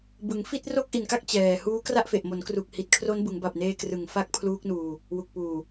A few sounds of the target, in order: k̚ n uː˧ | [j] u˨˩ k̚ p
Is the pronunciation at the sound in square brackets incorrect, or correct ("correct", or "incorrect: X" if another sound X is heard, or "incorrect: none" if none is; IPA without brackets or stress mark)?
incorrect: w